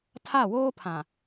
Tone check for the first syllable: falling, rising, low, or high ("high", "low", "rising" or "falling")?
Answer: falling